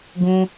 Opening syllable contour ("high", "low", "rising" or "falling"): high